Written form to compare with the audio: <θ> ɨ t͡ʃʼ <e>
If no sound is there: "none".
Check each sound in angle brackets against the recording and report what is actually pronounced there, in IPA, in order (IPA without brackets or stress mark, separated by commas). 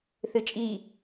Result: θ, i